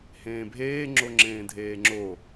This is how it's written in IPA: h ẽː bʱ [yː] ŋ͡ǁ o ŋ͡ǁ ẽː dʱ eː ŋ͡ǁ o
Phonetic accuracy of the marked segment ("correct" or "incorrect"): incorrect